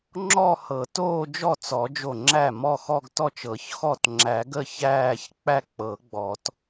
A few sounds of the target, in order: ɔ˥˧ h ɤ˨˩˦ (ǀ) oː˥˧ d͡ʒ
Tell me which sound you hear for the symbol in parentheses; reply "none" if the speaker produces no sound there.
t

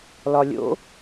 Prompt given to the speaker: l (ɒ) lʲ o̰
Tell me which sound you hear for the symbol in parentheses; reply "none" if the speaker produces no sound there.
ɒ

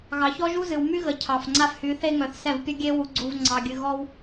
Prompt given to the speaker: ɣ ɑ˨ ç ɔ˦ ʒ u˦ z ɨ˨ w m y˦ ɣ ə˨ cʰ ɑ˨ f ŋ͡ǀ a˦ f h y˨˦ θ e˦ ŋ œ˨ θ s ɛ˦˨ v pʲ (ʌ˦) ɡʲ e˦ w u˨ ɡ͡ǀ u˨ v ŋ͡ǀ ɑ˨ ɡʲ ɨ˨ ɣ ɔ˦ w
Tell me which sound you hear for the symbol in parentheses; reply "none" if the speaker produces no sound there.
ə˦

